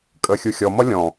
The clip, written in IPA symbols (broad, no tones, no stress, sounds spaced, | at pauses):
kʼ əː xʲ u xʲ ɔ m ʌ lʲ ɔ̃